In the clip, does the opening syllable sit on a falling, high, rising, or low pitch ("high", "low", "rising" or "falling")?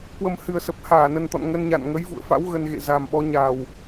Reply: low